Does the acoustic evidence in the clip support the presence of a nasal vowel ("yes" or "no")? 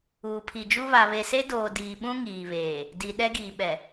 yes